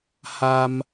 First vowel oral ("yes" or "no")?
yes